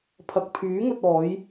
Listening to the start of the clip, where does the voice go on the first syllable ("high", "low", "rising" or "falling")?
low